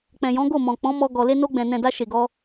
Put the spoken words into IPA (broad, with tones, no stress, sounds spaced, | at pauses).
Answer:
k͡p ɛ̃˨ j ɔ̃˨˦ ɡ o˦˨ m ɔ̃˨ k͡p ɔ̃˨˦ m ɔ˧ ɡ ɔ˨ l e˧ n o˧ ɡ͡b ɛ̃˨ n ɛ̃˨ d a˧ ʃ e˨ ɡ ɔ˧